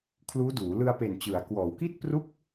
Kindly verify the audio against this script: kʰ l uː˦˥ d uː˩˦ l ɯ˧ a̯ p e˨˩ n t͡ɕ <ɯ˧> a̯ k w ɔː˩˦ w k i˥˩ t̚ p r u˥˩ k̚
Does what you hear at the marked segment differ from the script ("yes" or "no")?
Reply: yes